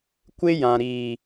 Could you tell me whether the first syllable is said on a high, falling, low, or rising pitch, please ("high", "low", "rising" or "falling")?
high